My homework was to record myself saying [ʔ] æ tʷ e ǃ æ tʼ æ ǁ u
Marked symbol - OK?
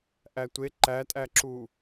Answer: yes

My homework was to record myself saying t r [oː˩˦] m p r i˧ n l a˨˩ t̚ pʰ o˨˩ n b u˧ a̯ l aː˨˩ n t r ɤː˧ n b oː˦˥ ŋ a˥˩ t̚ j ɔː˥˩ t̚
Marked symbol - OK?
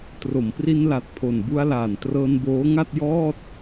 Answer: no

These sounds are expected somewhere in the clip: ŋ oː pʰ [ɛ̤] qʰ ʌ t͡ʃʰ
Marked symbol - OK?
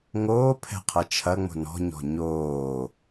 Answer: yes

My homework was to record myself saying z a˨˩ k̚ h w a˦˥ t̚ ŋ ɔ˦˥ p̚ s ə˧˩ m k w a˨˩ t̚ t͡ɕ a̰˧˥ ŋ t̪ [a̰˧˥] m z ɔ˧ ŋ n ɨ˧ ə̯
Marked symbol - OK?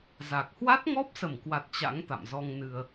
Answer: no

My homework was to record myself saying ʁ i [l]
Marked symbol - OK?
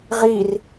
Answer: no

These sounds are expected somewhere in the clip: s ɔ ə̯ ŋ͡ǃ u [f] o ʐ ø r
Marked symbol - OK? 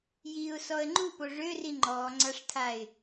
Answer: no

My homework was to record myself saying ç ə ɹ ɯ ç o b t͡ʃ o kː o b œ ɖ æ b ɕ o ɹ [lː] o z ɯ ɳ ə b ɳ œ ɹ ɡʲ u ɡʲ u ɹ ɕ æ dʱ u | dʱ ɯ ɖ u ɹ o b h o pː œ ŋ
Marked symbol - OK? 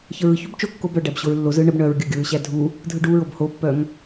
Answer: yes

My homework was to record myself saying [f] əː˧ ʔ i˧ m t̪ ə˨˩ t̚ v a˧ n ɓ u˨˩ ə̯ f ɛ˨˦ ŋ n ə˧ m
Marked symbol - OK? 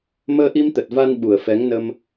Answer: no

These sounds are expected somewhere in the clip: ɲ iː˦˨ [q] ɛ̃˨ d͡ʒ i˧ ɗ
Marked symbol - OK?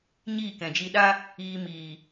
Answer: no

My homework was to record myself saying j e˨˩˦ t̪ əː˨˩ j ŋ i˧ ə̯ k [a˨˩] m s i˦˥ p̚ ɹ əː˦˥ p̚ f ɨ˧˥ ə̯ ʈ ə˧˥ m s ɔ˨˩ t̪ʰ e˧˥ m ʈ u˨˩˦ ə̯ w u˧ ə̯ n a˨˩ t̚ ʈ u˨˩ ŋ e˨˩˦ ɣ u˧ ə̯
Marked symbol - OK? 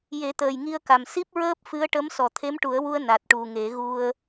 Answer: yes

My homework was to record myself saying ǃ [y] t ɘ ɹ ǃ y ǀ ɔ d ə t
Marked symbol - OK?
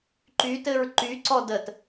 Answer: yes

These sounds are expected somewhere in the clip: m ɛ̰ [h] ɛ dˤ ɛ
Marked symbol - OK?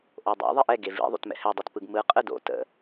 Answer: yes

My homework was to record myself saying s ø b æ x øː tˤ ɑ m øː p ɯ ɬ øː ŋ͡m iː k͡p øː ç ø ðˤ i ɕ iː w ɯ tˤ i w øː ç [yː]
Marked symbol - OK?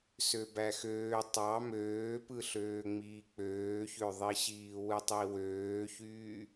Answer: yes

